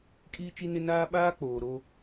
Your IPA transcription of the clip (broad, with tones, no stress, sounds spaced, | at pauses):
kʼ iː˦ t͡ʃ i˦ n ɪ˦ n aː˦ ɓ aː˦ k͡p oː˨ ɾ o˦